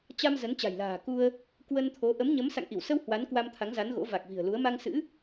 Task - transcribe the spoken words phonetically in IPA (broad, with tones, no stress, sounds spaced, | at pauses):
t͡ɕ a˧ m z ə˨˦ n t͡ɕ a̤˨˩ j l a̤ː˨˩ k u˧ ə̯ | k w ə˧ n t̪ʰ o˨˦ ʔ ə˨˦ m ɲ ə˨˦ m s a̰˧˨ ŋ ʔ i˧˩ w s ə˧ w h w a˨˦ n k w a˧ m t̪ʰ a˨˦ ŋ z a˨˦ n ɣ o̰˧˥ v a˨˩ k̚ v i̤˨˩ ə̯ l u˨˦ ə̯ m a˧ ŋ s ɨ̰˧˥